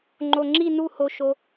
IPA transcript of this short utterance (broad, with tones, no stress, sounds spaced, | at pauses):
ŋ͡ǃ o˧ ŋ͡ǁ i˥˧ n u˥˧ h o˧ ʃ o˧